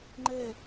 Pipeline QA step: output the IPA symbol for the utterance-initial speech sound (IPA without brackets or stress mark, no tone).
ŋ͡ǃ